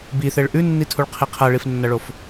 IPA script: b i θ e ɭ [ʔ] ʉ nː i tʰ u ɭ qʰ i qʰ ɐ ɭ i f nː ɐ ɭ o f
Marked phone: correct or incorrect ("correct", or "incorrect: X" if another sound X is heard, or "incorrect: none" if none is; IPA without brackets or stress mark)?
correct